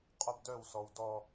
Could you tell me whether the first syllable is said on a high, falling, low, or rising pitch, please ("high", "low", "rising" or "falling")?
high